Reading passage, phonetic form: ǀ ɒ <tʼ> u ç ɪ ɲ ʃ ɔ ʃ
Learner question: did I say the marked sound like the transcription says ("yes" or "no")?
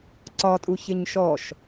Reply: yes